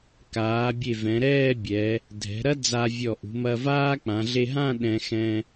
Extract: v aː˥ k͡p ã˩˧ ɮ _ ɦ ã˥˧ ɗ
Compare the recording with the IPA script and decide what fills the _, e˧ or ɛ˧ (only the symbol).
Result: e˧